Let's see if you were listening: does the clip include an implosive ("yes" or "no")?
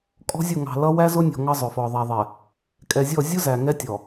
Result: no